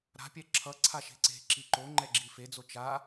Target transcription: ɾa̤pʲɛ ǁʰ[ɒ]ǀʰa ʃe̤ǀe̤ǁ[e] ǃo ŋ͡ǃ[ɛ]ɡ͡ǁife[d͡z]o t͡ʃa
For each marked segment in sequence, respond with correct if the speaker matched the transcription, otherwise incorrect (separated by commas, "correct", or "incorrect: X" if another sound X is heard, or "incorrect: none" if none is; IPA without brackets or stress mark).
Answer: incorrect: ʌ, incorrect: i, correct, correct